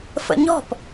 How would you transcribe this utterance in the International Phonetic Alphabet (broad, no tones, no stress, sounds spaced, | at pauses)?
f ə̰ ɲ ɔ̤ p